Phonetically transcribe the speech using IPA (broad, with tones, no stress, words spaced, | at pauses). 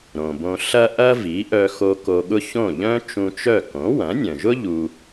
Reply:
ɾõ˩bõ˧ ɬɐ˥ ʔɐ˥vi˩˥ʔœ˧xo˧ ko˧ɠʊ˥ çõ˥˩ ʎœ̃˥ t͡ʃũ˧t͡ʃœ˥˩ kõ˩˥wɐ̃˩˥nʲœ̃˩ʒʊ˥ ʎu˧